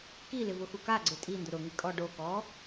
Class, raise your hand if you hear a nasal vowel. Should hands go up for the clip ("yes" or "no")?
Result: no